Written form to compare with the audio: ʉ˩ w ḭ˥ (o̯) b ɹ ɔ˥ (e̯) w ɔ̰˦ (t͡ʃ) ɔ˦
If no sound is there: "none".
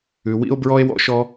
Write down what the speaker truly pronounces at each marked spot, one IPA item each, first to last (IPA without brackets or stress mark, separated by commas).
o̯, e̯, ʃ